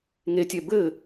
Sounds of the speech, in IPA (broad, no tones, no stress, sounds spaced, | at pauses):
ŋ e tʲ ɛ b ɘ